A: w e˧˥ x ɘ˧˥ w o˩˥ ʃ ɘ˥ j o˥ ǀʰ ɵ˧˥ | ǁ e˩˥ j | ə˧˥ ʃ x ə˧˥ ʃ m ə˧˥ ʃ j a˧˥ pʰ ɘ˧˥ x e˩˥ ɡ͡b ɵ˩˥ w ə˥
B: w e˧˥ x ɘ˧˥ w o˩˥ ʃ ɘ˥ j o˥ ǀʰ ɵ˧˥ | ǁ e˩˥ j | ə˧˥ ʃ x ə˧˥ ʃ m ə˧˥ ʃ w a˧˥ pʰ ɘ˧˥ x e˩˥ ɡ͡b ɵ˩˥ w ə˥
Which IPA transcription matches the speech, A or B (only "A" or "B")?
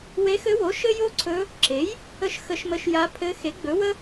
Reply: A